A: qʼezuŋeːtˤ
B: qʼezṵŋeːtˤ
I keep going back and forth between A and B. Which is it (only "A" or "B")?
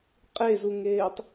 A